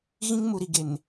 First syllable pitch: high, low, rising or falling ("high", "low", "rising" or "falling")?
high